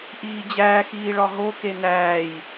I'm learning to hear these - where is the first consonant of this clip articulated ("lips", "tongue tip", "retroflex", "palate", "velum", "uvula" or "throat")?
throat